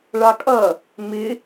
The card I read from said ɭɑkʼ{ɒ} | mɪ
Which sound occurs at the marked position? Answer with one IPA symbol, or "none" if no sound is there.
ʌ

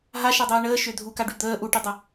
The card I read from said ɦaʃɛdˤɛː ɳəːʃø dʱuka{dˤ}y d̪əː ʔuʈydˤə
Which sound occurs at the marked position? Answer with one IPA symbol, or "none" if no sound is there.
ɖ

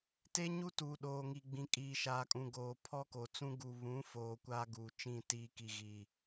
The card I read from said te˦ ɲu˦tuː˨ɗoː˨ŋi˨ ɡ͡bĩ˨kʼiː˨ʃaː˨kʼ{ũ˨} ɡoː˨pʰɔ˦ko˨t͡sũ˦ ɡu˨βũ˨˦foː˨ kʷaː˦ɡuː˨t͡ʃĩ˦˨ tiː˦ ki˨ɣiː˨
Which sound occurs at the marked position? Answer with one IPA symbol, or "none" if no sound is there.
ũ˨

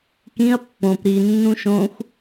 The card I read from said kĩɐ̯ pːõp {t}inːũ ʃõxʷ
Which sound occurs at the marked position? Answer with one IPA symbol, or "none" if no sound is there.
ɾ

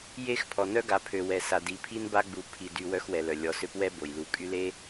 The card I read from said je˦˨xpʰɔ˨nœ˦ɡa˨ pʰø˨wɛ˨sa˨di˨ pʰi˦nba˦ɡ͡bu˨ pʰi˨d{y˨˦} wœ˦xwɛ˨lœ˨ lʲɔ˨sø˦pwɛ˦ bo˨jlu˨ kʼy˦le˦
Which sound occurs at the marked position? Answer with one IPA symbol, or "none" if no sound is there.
y˨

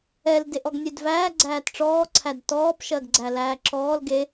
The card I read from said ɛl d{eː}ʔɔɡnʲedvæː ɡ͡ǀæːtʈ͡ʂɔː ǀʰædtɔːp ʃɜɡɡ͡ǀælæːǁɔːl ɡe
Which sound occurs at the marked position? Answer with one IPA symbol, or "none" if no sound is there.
e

